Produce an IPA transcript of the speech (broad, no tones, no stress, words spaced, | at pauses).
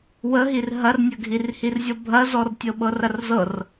wəɦir ɦɐrnʲəɡʱirhir zʲɔbʱɐzɔrtʲɤ ɓɤrɐrzɤr